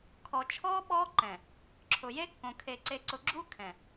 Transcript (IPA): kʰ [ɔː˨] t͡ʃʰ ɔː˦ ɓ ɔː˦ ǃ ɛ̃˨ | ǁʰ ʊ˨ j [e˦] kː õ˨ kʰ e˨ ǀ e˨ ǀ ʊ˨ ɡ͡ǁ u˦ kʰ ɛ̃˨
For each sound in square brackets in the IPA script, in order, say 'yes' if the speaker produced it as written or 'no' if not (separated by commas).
no, yes